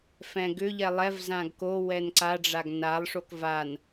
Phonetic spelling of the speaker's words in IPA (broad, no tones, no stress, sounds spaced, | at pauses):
f ɛ̃ ɡ ʏ ʎ ɛ lˠ ɛ v z ã ɡ k o w ɛ n ǀ a ɖ͡ʐ a ɡ n a lˠ ʂ o k v a n